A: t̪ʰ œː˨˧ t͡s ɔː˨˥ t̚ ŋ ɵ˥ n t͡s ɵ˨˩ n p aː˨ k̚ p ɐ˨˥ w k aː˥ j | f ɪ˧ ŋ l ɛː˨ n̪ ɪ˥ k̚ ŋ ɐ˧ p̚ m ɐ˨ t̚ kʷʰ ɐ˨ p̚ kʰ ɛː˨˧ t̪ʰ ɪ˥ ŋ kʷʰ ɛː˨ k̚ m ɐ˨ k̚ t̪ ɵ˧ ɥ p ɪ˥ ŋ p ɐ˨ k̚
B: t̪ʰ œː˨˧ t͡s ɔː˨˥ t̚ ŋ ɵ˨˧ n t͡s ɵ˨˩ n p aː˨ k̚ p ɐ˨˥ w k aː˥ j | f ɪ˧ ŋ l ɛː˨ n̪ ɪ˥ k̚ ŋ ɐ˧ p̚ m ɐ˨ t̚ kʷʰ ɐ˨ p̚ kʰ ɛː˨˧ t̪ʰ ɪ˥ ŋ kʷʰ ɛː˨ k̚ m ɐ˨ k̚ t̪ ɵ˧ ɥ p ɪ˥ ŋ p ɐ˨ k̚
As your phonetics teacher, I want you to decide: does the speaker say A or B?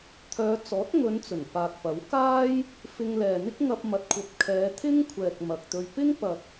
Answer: B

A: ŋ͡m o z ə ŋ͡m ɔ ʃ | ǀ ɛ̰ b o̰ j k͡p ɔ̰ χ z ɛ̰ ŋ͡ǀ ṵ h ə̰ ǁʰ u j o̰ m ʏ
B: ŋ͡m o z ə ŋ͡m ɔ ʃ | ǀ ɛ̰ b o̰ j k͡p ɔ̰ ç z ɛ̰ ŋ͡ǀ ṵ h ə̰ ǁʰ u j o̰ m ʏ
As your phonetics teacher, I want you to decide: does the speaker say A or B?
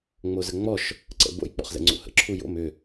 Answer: A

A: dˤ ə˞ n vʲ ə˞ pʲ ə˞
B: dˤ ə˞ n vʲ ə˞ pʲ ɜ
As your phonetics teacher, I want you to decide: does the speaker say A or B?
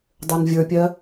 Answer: B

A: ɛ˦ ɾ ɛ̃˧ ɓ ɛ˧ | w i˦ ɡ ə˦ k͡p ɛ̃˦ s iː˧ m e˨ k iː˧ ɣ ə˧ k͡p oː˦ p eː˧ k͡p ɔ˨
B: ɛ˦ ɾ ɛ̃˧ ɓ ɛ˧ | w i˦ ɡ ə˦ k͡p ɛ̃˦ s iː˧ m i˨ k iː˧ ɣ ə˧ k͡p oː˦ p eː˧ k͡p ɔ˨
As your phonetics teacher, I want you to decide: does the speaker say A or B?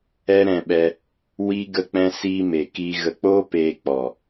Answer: A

